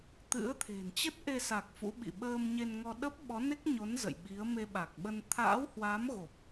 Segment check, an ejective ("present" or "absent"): absent